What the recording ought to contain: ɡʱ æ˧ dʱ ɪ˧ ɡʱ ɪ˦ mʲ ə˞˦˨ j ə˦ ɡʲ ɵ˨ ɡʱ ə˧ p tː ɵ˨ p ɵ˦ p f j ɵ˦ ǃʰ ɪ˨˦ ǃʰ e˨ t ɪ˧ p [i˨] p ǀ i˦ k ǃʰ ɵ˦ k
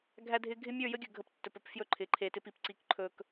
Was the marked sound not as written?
no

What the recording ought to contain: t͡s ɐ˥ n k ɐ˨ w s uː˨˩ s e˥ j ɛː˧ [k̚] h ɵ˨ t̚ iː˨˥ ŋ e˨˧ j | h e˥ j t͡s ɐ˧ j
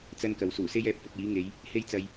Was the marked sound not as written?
yes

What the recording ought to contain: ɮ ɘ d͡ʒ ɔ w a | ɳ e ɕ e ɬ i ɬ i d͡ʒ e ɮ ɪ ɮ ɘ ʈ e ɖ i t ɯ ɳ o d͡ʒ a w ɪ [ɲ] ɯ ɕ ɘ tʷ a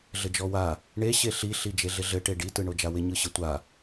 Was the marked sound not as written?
no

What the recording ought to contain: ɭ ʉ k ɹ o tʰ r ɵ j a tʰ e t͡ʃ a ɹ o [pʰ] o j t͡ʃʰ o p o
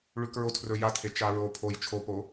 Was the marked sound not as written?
no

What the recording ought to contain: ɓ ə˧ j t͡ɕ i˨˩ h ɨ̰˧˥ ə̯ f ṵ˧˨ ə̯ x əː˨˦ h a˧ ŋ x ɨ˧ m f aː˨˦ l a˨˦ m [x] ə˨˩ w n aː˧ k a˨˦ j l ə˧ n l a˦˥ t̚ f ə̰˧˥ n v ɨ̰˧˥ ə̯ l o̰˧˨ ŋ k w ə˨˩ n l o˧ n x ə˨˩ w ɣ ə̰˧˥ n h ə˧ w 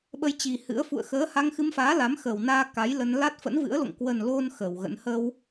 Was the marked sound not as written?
no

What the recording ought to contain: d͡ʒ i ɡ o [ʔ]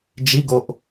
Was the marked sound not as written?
no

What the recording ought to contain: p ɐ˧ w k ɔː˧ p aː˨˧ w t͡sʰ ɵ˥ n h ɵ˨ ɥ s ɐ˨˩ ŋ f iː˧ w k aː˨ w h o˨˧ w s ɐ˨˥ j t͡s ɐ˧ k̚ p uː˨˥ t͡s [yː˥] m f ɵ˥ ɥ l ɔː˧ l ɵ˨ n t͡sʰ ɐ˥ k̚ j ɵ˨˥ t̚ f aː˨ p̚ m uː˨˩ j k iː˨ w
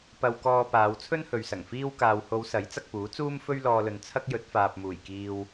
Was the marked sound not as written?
yes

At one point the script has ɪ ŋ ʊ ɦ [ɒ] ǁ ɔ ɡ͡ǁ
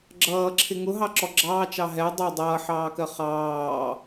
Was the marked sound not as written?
yes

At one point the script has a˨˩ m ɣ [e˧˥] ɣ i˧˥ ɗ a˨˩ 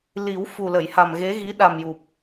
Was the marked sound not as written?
no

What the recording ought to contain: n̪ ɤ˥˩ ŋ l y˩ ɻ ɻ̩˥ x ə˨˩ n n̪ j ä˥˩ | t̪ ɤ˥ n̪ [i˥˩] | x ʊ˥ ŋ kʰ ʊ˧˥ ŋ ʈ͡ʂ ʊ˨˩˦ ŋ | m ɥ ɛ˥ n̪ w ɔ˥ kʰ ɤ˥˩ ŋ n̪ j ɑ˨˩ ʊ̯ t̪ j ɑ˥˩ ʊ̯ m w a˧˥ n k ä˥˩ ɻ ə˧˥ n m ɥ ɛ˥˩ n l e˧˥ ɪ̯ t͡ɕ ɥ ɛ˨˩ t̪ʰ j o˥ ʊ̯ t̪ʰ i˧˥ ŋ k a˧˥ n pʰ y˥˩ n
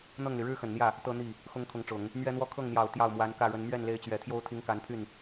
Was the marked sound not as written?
no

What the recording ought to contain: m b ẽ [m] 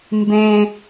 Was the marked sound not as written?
yes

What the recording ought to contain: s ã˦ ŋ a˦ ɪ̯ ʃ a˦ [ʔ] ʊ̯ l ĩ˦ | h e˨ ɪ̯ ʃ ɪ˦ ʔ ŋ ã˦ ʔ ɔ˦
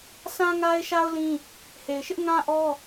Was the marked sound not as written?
yes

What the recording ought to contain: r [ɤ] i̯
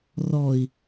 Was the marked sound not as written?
yes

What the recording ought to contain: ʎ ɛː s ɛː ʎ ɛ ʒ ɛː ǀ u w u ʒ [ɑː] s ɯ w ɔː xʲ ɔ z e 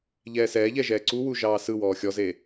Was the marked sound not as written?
no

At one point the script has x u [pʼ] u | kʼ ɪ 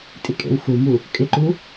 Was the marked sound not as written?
yes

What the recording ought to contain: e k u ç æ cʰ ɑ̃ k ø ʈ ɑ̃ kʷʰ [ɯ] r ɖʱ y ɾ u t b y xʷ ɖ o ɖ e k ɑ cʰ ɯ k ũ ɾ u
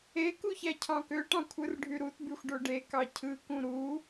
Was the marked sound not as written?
no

